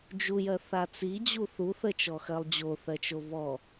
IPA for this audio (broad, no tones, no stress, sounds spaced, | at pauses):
d͡ʒ u j ɜ θ a t͡s i d͡ʑ u θ u θ ə t͡ʃ ɔ x ɜ lˠ d͡ʑ o θ ɜ t͡ʃ o β ɔ